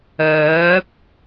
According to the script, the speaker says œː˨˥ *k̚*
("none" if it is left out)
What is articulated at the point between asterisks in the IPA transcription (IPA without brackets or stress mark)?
p̚